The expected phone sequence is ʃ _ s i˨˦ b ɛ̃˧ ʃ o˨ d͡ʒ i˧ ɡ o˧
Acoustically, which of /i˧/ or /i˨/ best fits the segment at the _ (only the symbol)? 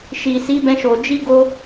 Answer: i˨